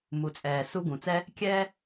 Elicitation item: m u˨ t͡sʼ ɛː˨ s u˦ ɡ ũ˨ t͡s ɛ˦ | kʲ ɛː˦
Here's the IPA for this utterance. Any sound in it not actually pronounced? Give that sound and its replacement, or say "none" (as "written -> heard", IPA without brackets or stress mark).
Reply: none